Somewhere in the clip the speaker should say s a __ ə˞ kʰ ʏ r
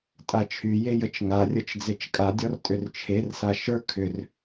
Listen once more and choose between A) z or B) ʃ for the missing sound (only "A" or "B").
B